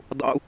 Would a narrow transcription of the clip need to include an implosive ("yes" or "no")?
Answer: no